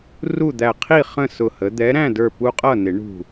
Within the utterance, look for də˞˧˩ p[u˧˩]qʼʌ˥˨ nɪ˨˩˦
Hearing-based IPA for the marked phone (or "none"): u˦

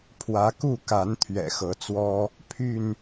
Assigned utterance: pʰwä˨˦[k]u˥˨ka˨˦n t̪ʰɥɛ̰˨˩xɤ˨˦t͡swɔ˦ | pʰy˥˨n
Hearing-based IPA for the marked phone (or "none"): k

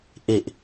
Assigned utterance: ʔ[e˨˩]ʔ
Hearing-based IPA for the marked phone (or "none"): e˨˩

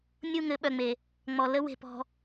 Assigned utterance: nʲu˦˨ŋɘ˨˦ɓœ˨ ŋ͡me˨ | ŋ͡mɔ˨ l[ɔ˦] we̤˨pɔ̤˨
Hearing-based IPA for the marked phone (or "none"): ə˦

